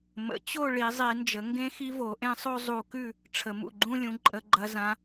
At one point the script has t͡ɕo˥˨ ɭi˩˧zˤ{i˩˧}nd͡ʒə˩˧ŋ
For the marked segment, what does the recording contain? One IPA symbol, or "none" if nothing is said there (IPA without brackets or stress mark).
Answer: i˩˧